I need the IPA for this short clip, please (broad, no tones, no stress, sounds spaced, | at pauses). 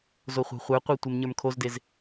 z o χʷ e̤ χʷ ə˞ qʷ e tʷ e m ɲ ə˞ m kʰ o z d e z